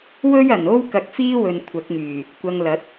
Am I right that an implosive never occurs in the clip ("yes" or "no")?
yes